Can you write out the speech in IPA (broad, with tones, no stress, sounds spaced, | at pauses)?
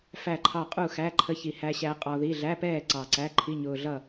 f æ˥˨ ǃʰ ɑ˥˨ qʼ u˥˨ x æ˧˥˧ ǃʰ ə˦˥ ç i˧ h æ˦˥ ɕ æ˦˥ qʼ ɔ˧ ð i˧˥˧ ɮ æ˧˥˧ p ɛː˥˨ ǀ ɑ˧˩ ǀ æ˧˥˧ ǃʰ i˧˥˧ ɲ ʊː˧ ɮ ʌ˥˨